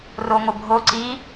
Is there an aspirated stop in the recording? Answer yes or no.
no